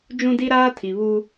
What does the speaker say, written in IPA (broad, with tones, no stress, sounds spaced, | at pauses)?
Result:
d͡ʒ ũ˦ d i˦ ɾ aː˦ tʰ i˨ β u˦